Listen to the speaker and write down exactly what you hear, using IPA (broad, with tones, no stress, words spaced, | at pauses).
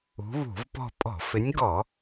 ṳ˨˦βṳ˧˩˧vpɔ̤˦˨ pʼɔ̤˧˩˧fɪ˨˦nʲɡɔ˧˩˧